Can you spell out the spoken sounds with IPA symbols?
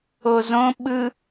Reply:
o z õ ɓ ɯ

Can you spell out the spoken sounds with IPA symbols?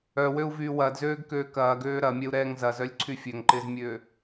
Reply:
œ w ø u̯ v yː w ɐː d z øː ɡ k øː k ɐː ɡ øː ɾ ɐ mʲ ɛ u̯ ɾ ɛː ŋ z ɐ z œ lʲ ǀʰ y fʲ ø ŋ ǃ ɪː z mʲ øː

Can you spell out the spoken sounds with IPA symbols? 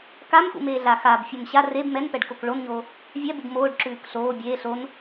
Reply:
k a m x ṵ m eː ɮ a x aː b fʲ o m ɕ a r e b m ɛ n p ɛ ɖ k o k ɭ o n ɲ oː | vʲ ɛ b u b m oː ɖ ǁ ʉː k ɬ oː bʲ eː ɬ o n

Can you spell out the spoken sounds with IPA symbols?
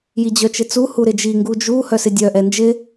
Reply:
j i d͡ʑ œ t͡ʃ ɪ t͡s u h u ɾ ɪ d͡ʒ i ŋ ɡ u d͡ʒ u h œ s ɪ dʲ œ ʔ ɛ n d͡ʒ ɪ

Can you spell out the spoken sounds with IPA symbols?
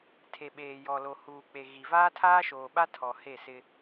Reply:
tʰ e˨ ɓ eː˨ j ɔ˨ l o˨ h uː˨ k͡p e˨ ɣ i˨ v aː˦ tʰ aː˦ ʃ oː˨ ɓ a˦ tʰ ɔ˨ h e˦˨ s ɪ˦

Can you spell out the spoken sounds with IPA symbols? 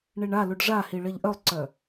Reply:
ɳ i ɳ a l u ɖ ʐ a h i ɭ ɜ ʎ ʔ œ lˠ ǀ œ

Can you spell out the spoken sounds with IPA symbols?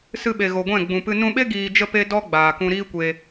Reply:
s ɨ˧ ɓ e˨ ɣ o˨ ɡʷ ɛ̃˦˨ ɡ͡b ũ˨ p ɨ˧ n ũ˧ ɓ e˦ ɡ iː˧ d͡ʒ ə˦ p e˦ d ɔ˦ ɡ͡b aː˨ k ũ˧ ɾ iː˦ kʷ e˧

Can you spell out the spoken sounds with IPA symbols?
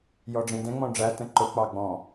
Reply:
j ɔ ɖ͡ʐ ĩ d ɛ̃ ŋ͡m ɔ̃ ɖ͡ʐ æ t ə̃ ǃ ʊ k͡p ɑ ɡ͡b ɔ̃

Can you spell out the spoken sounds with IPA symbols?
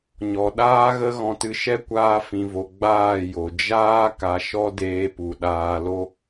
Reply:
ɲ ɔ˨ ɗ aː˧ ɣ ə˧ ɣ ɔ̃˧ t ɨ˧ ʃ ɛ˦ kʷ aː˧ f ĩ˨ v o˨ ɡ͡b aː˦˨ j o˨ d͡ʒ aː˦ k a˧ ʃ ɔ˦ d eː˧ p u˨ ɗ aː˧ l o˦

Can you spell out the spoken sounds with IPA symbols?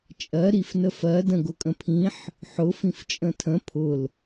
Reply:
t͡ʃʼ ɜ ɾ i f n ə f ɜ d ə̃ ɡ ʊ kʼ ə̃ pʰ ĩ ħ | ħ ʊ f ĩ f t͡ʃʼ ə̃ tʰ ə̃ pʰ ʊ l

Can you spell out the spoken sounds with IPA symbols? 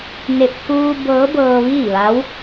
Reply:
n e˧˩ p̚ k uː˧ b ɤː˧˥ b ɤː˧ ʋ iː˥˨ ʋ a˧˥ w

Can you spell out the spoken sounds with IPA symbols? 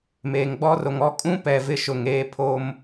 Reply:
m eː˨ ŋ ɡ͡b ɔ˦ r o˨ ŋ ɔ˦˨ kʼ ũ˦ p ɛ˨ v ɪ˦ ʃ ʊ˨ ŋ eː˦ pʰ o˦ m

